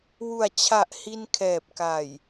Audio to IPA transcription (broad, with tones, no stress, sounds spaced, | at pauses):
w u˨˩ a̯ t͡ɕʰ a˨˩ ʔ h i˧ n kʰ ɛː˨˩ p̚ k a˨˩ j